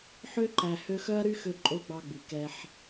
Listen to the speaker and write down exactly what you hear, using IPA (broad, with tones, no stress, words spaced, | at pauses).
ħø˥ǃæ˨ hø˦xœ˥ɐ̯ɾy˥ xø˥ǃʼo˥ɡ͡bɑ˦ɡ͡by˩ kɛ˦ħ